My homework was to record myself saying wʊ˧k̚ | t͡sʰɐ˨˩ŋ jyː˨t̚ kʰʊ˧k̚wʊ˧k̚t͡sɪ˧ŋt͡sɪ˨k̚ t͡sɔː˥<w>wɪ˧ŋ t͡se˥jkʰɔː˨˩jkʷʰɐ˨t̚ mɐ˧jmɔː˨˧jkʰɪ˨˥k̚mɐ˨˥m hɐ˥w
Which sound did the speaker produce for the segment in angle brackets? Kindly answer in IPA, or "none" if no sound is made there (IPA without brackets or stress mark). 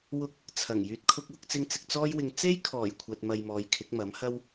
j